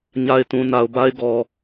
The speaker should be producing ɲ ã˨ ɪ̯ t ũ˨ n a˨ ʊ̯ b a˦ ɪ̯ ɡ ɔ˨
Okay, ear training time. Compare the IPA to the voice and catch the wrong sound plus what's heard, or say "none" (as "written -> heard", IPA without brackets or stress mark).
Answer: ã˨ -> a˨